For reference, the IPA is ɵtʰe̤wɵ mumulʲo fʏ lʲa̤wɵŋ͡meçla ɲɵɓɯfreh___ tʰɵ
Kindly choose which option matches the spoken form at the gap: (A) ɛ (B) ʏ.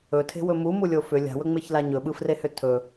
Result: B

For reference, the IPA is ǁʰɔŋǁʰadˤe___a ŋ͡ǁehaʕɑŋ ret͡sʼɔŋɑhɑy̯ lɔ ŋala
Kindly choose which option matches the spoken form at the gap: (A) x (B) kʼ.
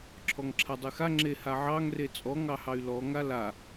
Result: A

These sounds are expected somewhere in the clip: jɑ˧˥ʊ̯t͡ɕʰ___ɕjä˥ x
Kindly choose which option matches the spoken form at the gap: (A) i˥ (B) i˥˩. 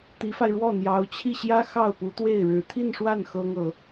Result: B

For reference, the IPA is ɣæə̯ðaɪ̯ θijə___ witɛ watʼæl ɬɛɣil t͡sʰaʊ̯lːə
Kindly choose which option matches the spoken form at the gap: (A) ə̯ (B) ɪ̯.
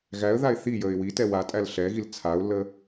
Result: B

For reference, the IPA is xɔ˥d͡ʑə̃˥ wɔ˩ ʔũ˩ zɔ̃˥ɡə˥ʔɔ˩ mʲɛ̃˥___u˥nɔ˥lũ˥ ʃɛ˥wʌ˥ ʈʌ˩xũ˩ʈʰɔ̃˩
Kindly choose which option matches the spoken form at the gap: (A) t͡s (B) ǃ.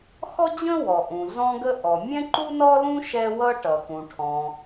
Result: B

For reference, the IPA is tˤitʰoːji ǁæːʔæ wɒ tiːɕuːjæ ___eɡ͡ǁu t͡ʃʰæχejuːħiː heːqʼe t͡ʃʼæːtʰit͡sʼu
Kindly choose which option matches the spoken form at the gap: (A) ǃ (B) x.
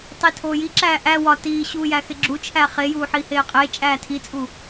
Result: B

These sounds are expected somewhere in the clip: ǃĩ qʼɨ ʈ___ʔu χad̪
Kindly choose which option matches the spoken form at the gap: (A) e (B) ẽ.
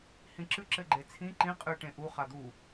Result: B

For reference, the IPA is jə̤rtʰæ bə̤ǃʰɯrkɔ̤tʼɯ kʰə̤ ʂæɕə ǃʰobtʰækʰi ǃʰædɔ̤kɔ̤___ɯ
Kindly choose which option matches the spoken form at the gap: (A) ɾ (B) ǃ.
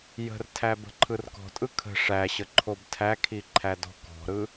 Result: A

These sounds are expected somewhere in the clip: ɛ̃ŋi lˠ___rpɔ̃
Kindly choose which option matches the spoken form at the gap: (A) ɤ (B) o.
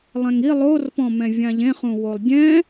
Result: B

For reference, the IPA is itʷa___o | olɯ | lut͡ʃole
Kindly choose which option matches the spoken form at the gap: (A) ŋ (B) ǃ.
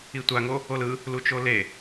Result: A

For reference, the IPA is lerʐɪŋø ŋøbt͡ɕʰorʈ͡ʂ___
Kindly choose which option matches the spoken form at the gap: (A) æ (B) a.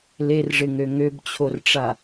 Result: B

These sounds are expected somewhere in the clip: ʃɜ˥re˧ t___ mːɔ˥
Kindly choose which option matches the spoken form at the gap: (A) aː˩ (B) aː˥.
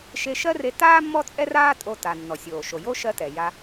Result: B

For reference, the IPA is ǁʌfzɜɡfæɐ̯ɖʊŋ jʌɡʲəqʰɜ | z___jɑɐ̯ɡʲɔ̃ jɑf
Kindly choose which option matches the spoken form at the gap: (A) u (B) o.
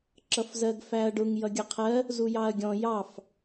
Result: A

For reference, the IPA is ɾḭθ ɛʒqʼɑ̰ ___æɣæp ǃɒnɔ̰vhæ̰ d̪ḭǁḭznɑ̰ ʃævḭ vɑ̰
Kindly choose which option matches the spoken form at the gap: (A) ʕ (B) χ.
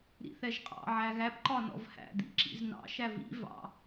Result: A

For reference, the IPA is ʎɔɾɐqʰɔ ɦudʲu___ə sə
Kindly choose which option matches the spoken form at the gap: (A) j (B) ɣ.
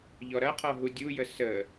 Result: A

